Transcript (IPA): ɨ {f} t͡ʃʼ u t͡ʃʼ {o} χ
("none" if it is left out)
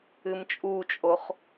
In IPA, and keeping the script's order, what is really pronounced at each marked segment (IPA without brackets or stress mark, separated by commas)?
m, o